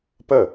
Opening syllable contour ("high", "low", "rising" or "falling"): falling